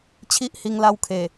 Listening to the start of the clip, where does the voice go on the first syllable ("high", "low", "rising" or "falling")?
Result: high